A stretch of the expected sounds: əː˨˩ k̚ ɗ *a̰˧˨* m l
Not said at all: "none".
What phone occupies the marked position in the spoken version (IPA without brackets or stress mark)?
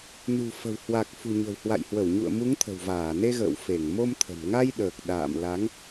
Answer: a̰ː˧˨